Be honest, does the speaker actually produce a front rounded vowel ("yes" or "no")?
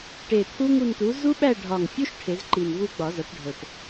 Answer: no